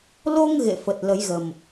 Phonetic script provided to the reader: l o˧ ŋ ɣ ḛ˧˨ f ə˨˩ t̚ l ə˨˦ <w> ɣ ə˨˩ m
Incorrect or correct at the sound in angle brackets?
incorrect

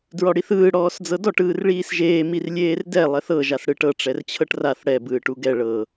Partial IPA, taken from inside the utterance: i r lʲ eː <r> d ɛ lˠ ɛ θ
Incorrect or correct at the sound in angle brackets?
correct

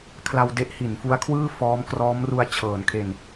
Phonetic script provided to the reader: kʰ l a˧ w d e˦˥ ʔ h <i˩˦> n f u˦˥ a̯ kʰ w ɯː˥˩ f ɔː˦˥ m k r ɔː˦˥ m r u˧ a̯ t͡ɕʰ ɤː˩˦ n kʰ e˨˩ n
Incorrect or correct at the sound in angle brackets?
correct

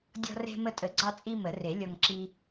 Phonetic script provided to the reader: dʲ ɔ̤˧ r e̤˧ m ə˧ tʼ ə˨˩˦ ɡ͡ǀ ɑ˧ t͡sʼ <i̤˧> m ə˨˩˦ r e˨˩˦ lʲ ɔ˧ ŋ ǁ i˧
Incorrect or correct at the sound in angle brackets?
incorrect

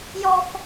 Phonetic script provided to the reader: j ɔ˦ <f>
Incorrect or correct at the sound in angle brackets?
correct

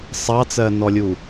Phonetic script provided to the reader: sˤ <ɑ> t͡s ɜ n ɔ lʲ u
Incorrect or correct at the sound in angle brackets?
correct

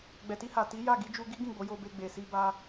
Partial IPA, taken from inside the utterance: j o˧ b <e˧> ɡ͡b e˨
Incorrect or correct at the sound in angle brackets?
correct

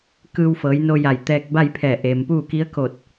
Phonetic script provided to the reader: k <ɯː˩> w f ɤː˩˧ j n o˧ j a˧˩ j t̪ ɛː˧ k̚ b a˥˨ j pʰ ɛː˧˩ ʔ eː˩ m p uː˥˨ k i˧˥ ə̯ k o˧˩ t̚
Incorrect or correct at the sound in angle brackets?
incorrect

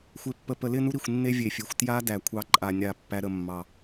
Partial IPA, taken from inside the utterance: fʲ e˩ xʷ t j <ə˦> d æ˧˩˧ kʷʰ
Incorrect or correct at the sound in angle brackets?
incorrect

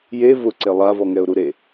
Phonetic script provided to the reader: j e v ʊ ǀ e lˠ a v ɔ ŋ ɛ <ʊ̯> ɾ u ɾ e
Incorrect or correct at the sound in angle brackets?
correct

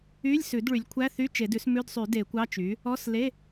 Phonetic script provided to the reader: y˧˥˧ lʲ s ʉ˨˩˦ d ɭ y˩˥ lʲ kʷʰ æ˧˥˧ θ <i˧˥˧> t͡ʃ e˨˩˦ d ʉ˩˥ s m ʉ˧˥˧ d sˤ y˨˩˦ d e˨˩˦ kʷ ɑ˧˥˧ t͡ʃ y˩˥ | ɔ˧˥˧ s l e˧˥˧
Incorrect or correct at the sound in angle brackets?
incorrect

